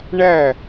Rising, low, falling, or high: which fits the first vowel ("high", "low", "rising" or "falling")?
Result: falling